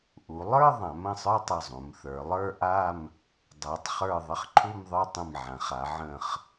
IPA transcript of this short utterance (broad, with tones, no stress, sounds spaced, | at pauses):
ʔ u˩˧ lˠ ə˞˥˧ ðˤ ã˩˧ m ə̃˧˩ sˤ ə˞˥˧ tˤ ə˧˩ zˤ ũ˩˧ m θ ə˞˩˧ lˠ ə˞˥˧ ʔ a˥˧ m | dˤ ɜ˩˧ tˤ χ ə˞˧˩ ðˤ ə˥˧ χ ǃʰ u˥˧ m ðˤ ə˞˥˧ tˤ ə̃˧˩ m ʕ ã˩˧ χ a˩˧ ʕ ə̃˧˩ χ